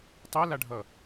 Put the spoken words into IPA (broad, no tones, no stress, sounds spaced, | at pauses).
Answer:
tˤ a l a ɖʱ ʌ